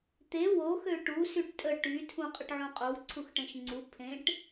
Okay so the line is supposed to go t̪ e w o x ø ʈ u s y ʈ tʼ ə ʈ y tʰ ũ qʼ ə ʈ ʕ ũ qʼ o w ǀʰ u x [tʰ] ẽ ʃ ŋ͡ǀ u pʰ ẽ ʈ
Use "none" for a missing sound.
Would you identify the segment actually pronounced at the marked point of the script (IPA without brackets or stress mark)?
ʈ